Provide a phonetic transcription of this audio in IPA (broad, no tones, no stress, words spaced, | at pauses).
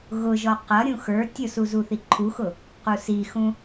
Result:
ɣʊʒɔ qʌɾʲũ xə˞ tʲʊsu zuθiǃʰuxʊ | qusixũ